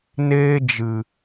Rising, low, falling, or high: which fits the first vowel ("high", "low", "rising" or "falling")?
high